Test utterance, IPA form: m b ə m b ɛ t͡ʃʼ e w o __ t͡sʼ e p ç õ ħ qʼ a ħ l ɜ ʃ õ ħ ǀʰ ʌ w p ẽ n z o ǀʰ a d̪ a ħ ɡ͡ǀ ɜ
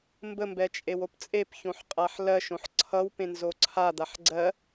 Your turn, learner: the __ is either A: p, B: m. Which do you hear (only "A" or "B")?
A